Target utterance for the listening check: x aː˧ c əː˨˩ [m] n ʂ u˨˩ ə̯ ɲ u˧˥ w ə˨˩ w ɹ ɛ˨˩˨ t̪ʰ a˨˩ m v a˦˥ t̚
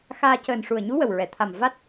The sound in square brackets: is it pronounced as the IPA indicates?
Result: no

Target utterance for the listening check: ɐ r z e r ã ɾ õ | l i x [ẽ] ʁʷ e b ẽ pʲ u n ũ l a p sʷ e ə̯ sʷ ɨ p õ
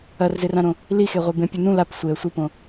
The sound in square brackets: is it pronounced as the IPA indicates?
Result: no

